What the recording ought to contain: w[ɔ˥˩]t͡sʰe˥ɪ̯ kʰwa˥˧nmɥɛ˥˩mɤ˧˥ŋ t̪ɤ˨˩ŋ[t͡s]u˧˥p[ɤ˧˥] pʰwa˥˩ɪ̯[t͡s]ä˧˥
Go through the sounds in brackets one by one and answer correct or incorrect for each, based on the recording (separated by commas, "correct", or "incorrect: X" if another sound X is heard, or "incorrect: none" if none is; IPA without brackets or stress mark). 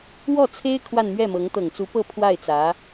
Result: correct, correct, incorrect: ɤ˥˧, correct